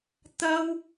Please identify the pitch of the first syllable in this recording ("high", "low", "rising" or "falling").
high